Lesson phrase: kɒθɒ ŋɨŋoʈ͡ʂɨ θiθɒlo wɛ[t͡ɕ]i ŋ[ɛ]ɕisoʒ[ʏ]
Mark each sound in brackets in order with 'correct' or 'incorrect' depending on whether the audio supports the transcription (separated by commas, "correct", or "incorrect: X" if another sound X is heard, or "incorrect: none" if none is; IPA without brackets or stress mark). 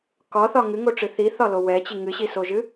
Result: correct, incorrect: ɨ, incorrect: ɨ